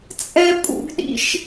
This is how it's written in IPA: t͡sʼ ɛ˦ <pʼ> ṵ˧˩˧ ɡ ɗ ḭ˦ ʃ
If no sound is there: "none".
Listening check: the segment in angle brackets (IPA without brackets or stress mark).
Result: pʼ